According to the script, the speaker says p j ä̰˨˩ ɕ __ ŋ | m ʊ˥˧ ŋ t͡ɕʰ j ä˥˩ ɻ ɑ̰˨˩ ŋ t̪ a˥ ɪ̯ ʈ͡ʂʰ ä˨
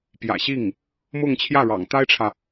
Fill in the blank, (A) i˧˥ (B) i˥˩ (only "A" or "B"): B